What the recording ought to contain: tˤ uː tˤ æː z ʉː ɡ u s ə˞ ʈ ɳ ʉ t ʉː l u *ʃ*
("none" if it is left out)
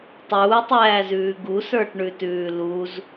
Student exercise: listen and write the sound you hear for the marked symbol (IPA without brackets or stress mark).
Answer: z